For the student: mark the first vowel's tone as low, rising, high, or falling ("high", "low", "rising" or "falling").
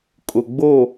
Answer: low